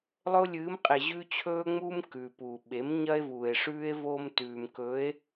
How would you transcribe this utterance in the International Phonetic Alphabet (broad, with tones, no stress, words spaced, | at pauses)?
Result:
lˠɵ˦o̯lʲɨː˨˦mqʼe˨ʑʉ˦ t͡ɕʰɵː˦ŋ͡muː˦m kʉ˨pu˨ ɓe˨˦mɲɐ˦e̯vuː˨e̯ʂʉː˦e̯ vo˦mtʉː˨mkɵ˨˦e̯